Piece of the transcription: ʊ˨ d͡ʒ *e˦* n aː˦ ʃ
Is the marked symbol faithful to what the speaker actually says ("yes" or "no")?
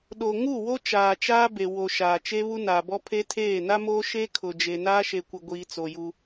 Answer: no